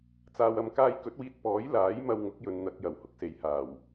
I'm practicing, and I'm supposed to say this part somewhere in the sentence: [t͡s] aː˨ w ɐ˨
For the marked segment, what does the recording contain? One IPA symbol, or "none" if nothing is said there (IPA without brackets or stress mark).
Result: t͡s